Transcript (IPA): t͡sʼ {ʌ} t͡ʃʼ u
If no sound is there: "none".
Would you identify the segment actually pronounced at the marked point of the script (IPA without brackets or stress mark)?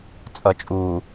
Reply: ʌ